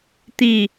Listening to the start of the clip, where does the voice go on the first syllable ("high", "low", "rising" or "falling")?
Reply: falling